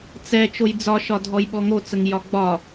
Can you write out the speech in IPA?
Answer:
t͡s ɛ t͡ʃ o j d͡z ɒ ʃ ɒ dʱ ɔ j ɓ ɔ ŋ o t͡s ə ŋ j ɒ ɡ͡b ɒ

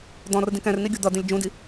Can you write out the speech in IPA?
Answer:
d̪ ɔ̃ r d ĩ k ɛ̃ r n i ɡʲ u d̪ ʌ d̪ ĩ lʲ d͡ʒ ũ d i

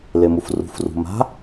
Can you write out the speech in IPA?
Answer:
l e m u f r ṳ f r ṳ m a̤

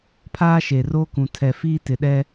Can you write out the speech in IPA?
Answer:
pʰ aː˦ ʃ e˨ r oː˦ k ũ˨ tʰ ɛ˨ f iː˦ t ɪ˨ ɗ ɛ˦

